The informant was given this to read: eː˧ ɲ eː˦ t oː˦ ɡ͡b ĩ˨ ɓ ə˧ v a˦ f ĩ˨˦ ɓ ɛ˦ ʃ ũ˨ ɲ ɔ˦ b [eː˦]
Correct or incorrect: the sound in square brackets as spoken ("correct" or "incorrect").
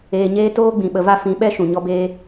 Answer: correct